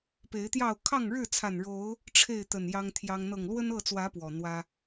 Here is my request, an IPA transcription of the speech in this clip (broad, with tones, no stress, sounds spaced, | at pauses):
p e˨˦ ɪ̯ t̪ j ɑ˥˨ ʊ̯ kʰ ɑ˥˨ ŋ ɻ ɻ̩˥˨ t͡sʰ a˨˩ n ɻ o˨˦ ʊ̯ | ʈ͡ʂʰ e˥˨ ɪ̯ t̪ ə˨˩ n j ɑ˦ ŋ t̪ʰ j ɑ˦ ŋ n̪ ɤ˨˩ ŋ l w ə˦ n ɤ˥˨ t͡s w ä˨˦ p w ɔ˨˩ n̪ w ä˦